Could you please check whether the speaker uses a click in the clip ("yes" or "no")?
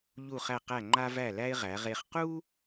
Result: yes